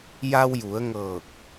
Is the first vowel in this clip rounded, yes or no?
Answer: no